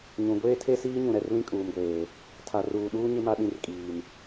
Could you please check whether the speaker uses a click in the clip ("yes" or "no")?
no